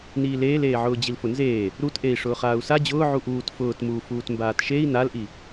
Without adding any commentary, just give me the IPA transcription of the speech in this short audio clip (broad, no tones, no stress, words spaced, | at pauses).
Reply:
niːleːleːʕʊː d͡ʑilfʊnzeː | ɾutʔei̯ ʂʊːχaːu̯sa d͡ʑʊː ʕuʔuːt fʊːtmuː fuːtmbaːtʃei̯ nalʔi